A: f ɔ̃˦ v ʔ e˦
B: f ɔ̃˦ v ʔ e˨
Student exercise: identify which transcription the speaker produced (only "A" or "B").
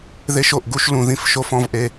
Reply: A